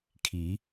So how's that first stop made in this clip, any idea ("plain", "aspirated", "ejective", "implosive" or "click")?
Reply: aspirated